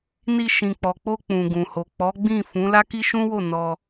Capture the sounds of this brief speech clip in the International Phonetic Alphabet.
ni˧ʃĩ˨k͡pɔ˨ k͡po˧ k͡pũ˨ɡũ˨ho˨ k͡pɔ˨˦ɡ͡bĩ˦˨fũ˨˦ la˦ki˦ʃũ˦wo˦˨ nɔ˧

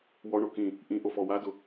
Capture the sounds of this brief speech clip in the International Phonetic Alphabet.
wɔɳo kĩ | ʔĩʔofɔ wadʊ

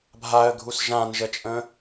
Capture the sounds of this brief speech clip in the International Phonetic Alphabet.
bʱaə̯ɡʱus ʒãnʒət͡ʃʼə̃

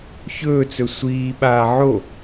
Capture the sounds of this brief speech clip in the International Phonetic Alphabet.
çɵːt͡sɵ sʷiːɓaː ʕo

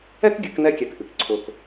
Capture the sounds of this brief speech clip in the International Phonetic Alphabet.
ɛ˥kɡʲɨ˩˧k nɛ˧kʲɛ˩k ʔɨ˩kǀʰʊ˩k

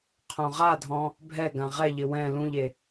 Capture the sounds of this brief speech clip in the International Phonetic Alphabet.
qʰõʁadʱɔ̃ | bʱɛɡã ʁɛʎɪ wɛ̃ lũʎe

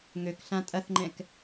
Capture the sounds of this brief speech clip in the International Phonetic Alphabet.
ŋøkɬã tʼɐθŋ͡ǃɛ̃k

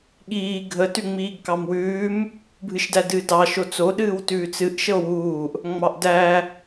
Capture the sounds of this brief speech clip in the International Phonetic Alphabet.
ɠiː ɡʱə tʉŋ͡miːɡkɑmwʉːm | bʱɨʃdædɨːdɑ ʃot͡so ɗɨːwtʉːt͡sɨʔ ʃəo̯wuːʔ | ŋ͡mɑʔdæ

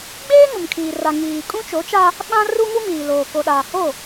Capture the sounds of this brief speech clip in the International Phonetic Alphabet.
ɡ͡beː˦ ŋʊ˨mkʰiː˨ra˨ ŋiː˨ kʼũ˦t͡ʃo˨˦t͡ʃa˦ | ɓã˦ru˦ ŋu˦miː˨loː˨ ko˨ɗaː˨ ho˦˨

